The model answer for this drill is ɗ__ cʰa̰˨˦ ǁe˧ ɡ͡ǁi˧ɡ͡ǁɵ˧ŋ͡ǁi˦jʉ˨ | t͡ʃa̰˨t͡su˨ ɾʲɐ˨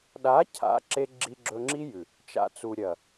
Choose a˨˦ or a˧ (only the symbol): a˨˦